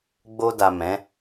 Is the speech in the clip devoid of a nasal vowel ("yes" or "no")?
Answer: no